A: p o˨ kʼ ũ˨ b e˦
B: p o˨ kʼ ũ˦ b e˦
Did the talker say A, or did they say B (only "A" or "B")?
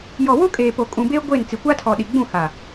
A